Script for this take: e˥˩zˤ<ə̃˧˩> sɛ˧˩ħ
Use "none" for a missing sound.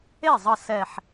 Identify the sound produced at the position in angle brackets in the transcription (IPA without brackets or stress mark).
ə˧˩